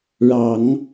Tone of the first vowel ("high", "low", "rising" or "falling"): low